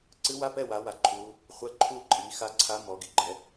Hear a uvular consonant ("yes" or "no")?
yes